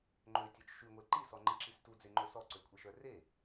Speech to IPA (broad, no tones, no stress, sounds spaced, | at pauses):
ŋ͡ǃ ø tʲ œ t͡ʃ ʃ y ŋʷ e ǃ i s ɔ ŋ͡ǃ i ǁ i s t u d͡z e ŋ͡ǃ ø s ɔ ǀ ø kʷʼ i ʃ œ r e